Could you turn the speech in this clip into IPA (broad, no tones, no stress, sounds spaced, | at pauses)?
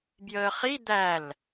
b j əː χ i d̪ æ l